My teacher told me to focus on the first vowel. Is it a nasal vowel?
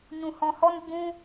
yes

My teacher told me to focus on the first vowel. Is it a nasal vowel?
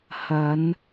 no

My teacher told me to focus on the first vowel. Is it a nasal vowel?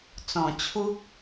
yes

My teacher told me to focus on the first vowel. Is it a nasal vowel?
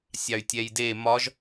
no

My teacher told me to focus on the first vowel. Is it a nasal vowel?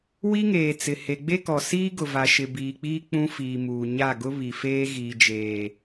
no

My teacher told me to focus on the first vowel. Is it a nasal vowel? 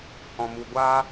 yes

